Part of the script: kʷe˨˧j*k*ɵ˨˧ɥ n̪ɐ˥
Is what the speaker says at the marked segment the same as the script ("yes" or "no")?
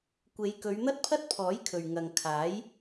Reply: yes